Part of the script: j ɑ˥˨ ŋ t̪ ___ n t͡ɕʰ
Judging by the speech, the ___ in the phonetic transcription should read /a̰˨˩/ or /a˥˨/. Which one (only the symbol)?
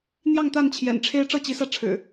a˥˨